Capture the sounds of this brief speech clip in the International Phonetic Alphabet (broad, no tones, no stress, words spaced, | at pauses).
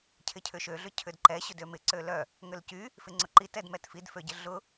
cʰɪcʰʏʃø ɮʏcʰʏdǃɛ ɕʏdømɪ ǀølœ | ŋʏlcy | fɪŋ͡ǀʊǃi tɛdmɛtfid føɟɪɮʊ